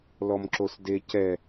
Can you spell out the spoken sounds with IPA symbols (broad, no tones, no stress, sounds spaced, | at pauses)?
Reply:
l ɔ m ǁ o s d e c ɛ